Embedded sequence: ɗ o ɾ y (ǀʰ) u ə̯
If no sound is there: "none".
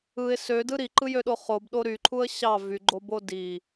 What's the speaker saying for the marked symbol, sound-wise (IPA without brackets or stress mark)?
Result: ǃʰ